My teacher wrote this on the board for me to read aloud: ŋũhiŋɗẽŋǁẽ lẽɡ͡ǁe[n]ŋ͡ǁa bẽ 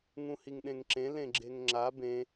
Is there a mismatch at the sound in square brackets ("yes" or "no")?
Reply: yes